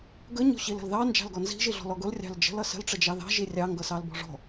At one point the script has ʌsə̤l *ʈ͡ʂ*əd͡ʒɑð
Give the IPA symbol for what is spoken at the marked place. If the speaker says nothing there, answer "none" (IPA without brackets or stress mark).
ʈ͡ʂ